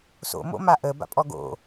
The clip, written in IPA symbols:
so̰mo̰ maʔə ba̰pʼɔɡo̰

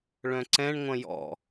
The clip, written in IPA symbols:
ɭœ̃ǀɛ̃ɳŋʷɐ̃ jɔ̰

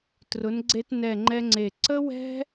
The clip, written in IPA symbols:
trʊ˧˥nɡ͡ǀe˥t nɛ˥˧ŋ͡ǃɛ˥ ŋ͡ǀe˥˧ ǀə˥wɛ̤˥

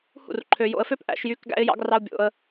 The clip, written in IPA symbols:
hṵ˦˨rǃʰø˧jo̰˧ə̯fø˦p ʔæ̰˧ʃjy˧k ɡæ̰˧ɪ̯jɑ̰˧ɡrɑ˧ʊ̯ bʲo̰˧ə̯

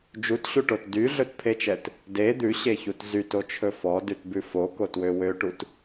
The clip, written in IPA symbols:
d͡ʒutɕuʈot dyɮɵtpʰet͡ʃɛt | de d̪ʉɕeçut zytot͡ʃʰɵ fɔdʉtbʉ fokotwø wøʈut

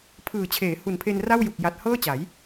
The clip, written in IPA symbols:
pʰɯː˨˩t͡ɕʰeː˩˦hu˨˩npʰe˧n ra˥˩wju˨˩k̚ ja˨˩t̚hɤː˥˩t͡ɕa˩˦j

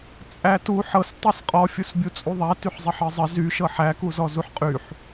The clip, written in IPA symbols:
t͡sʼætu ħɤs tˤisqʼɔ fʲusbʲut͡sʼuðˤæ tyħzˤɘħɘzˤɘ zy ʃɤħæ kuzɔzuħqʼyħ

